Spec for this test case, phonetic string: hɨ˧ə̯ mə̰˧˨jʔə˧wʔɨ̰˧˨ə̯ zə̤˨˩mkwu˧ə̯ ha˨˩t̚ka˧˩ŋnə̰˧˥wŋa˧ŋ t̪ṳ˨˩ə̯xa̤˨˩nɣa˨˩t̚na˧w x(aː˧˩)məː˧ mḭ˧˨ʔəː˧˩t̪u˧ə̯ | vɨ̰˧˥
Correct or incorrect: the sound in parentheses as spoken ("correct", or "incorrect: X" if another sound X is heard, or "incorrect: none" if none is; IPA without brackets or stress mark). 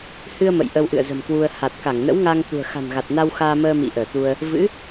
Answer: incorrect: aː˧